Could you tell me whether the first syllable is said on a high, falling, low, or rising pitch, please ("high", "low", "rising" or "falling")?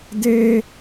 high